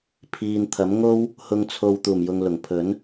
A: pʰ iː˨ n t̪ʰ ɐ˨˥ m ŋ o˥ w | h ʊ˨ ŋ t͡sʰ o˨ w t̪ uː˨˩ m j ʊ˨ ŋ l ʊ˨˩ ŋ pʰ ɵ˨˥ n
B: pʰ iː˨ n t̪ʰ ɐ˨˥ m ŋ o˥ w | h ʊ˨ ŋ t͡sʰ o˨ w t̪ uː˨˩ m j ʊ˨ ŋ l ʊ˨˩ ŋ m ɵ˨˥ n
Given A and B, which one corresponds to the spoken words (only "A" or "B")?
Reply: A